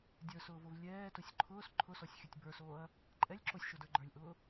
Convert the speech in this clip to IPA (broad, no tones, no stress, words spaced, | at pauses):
dʲə˞sʊːvov lʲɛːtʊsʲ ǃʰʊːs ǃʰʊsɔsʲ xʲʊtʲ bə˞soːɐ̯ | ǃʼɛlʲ ǁosʲʃodə˞ ɡ͡ǃə˞lʲʔʊː